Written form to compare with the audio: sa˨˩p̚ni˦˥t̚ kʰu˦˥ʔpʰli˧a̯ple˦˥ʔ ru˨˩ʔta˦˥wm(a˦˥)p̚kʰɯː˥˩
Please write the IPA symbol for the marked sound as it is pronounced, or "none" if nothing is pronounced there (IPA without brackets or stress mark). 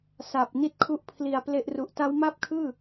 a˥˩